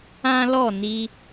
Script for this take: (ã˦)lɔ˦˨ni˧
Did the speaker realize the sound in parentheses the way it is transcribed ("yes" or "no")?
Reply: yes